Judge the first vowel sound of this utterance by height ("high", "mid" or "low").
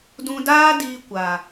high